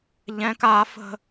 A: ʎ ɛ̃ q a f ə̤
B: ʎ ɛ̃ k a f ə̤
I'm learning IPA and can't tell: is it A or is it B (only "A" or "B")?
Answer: B